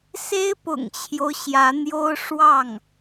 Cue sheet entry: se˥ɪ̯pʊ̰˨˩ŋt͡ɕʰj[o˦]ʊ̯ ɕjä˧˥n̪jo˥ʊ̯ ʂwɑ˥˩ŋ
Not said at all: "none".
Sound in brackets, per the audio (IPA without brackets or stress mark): o˦